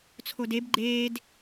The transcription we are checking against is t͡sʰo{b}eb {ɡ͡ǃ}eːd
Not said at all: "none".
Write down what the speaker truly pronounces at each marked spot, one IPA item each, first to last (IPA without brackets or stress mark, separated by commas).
d, ɡ͡ǃ